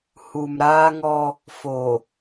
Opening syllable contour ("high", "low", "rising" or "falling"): low